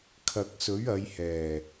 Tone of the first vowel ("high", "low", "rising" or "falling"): low